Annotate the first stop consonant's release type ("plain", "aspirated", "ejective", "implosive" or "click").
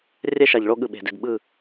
implosive